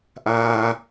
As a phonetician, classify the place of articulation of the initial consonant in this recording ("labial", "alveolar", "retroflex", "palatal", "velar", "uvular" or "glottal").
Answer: glottal